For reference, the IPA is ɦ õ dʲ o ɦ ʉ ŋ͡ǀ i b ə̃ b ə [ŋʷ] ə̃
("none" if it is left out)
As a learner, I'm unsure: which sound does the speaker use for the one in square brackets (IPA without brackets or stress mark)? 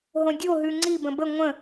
ŋʷ